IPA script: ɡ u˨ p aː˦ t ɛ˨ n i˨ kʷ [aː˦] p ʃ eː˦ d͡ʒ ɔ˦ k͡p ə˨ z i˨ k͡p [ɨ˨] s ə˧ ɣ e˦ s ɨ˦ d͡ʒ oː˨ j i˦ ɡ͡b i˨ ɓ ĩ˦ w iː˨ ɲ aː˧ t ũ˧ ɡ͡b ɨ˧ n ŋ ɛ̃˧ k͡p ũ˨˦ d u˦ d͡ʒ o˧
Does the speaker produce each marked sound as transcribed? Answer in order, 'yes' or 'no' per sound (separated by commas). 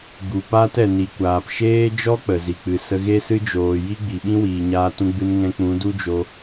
no, yes